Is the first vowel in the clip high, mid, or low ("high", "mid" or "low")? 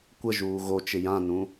mid